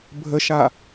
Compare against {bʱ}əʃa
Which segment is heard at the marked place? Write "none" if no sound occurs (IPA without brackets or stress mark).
bʱ